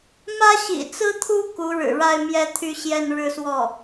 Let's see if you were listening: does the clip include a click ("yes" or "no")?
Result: no